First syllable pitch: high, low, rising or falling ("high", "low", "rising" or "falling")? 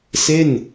falling